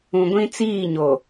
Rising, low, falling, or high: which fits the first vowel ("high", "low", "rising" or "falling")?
low